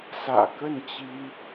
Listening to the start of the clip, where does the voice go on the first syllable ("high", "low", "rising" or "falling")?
low